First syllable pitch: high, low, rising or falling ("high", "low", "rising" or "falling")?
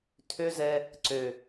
high